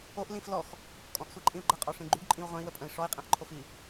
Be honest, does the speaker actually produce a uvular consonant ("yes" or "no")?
yes